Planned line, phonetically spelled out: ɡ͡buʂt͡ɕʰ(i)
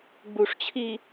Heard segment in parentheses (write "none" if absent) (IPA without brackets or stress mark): i